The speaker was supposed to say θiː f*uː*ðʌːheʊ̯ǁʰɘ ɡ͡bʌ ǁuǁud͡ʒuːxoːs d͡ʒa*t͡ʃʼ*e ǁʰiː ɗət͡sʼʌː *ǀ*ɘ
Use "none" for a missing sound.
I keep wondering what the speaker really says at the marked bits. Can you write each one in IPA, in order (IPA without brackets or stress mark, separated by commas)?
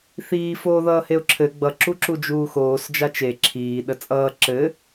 oː, t͡ʃ, ǁ